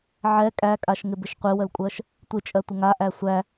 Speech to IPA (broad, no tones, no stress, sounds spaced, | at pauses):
ʕ ɛ kʼ æ kʼ a ʃ ŋ ɪ b ɪ ʃ qʷ ɪ w ə l kʷʼ ɜ ʃ | tʷ ɪ t͡ʃʼ ɜ tʷ ə ŋ a ʔ æ sʷ æ